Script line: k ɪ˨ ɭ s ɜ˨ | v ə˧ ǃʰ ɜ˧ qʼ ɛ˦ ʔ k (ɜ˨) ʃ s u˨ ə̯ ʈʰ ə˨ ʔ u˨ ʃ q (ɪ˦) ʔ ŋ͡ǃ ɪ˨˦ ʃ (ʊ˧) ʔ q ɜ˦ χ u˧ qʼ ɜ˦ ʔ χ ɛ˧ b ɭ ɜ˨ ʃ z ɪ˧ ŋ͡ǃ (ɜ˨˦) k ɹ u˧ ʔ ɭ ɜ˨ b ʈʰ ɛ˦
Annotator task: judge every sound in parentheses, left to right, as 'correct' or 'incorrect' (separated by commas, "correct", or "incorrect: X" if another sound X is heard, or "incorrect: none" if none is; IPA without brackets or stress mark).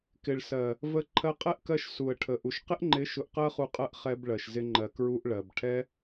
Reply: incorrect: ɜ˧, correct, correct, incorrect: ɜ˨